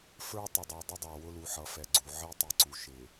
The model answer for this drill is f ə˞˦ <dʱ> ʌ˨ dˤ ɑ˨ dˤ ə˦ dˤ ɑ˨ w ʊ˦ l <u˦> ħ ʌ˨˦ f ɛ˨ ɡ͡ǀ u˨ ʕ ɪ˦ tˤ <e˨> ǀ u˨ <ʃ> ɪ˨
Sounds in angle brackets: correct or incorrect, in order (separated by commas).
incorrect, incorrect, incorrect, correct